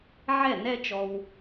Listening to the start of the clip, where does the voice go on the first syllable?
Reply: falling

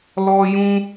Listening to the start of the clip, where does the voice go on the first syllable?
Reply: high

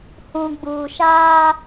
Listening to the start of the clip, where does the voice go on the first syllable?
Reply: low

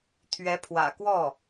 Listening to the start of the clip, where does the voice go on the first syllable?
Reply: rising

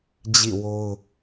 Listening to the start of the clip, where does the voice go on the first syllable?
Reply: falling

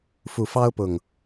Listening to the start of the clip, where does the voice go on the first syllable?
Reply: low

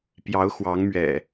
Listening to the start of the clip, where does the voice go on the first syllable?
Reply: rising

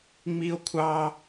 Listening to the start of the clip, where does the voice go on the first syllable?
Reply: high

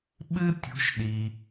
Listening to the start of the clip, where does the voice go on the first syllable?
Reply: high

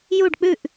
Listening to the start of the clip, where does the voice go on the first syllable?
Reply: falling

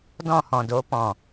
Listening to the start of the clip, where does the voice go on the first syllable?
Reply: falling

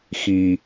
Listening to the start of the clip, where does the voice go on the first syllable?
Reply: low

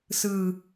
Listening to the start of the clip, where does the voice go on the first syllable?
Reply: low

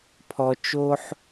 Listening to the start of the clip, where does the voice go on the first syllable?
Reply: low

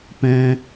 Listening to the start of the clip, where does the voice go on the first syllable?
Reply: high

